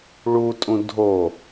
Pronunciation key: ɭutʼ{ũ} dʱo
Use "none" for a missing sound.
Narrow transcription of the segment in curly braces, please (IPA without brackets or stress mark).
ũ